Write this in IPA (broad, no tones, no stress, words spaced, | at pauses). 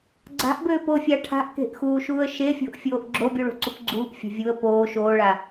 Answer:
ɡ͡ǀa̤ʔbøːpofʲa ʈʰa̤ʔke̤ʔxuːʃuːə̯ ʃefʲo̤ʔfʲoːʔ ɡ͡ǁobʲuɭo̤ǀup ɡ͡ǀuːpfʲa̤ vʲuə̯ poː ʃoːɭa